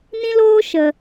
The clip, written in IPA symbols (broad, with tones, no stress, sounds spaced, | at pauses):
n ĩ˦ l oː˦ ʃ ə˨